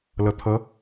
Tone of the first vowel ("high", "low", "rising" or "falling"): low